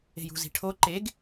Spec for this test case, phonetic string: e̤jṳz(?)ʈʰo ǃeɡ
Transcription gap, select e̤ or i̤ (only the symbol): i̤